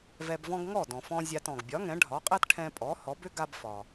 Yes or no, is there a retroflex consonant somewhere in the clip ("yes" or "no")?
yes